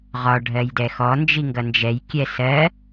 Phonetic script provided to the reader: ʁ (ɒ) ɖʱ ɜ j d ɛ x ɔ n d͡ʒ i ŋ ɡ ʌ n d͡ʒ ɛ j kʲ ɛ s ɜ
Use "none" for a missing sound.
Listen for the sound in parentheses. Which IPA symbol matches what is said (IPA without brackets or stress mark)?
ɒ